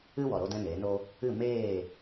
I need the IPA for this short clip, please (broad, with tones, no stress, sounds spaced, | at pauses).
ɨ˦ w ɔ˨ ɾ o˦ d ɛ̃˦ n eː˨˦ n o˦ | ɨ˦˨ m eː˦˨